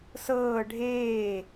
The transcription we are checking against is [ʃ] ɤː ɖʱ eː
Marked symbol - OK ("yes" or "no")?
no